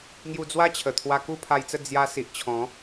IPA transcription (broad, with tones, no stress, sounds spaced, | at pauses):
ŋ j u˧ d͡z w a˦ t͡ɕʰ ə˨˩ t̪ʰ w a˧ k u˥˧ pʰ a˧ j t͡s ə˥˧ d͡z j a˦ s i˨ ʔ t͡ɕʰ ɔ̃˨˦